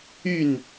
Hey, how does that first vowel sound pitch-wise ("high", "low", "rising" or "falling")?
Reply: falling